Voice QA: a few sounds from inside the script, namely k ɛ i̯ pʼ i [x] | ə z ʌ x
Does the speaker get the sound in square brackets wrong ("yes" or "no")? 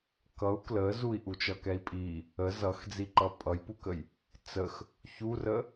yes